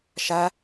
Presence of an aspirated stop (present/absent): absent